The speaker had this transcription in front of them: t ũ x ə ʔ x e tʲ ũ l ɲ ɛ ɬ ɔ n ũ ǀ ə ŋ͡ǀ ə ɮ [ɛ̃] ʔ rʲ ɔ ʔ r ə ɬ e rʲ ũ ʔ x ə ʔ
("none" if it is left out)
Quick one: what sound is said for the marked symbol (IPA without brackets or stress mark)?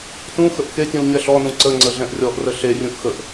ɛ̃